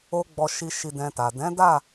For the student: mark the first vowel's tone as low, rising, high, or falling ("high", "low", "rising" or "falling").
high